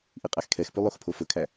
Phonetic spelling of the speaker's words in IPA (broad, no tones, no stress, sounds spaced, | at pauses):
ʔ i qʼ æ x kʰ ɛ x p ʉ lˠ o x pʰ o f ɵ kʰ æ